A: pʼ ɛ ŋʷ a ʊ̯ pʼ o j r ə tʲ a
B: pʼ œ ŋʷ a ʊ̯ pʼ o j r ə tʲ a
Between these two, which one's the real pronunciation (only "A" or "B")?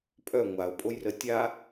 B